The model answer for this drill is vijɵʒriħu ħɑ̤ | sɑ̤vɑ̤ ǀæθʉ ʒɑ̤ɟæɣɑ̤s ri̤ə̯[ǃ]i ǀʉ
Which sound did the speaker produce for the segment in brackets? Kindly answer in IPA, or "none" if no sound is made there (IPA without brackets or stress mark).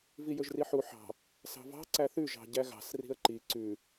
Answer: ǃ